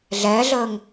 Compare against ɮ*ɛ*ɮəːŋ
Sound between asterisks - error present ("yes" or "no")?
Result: yes